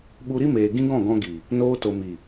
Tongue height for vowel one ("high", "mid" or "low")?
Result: high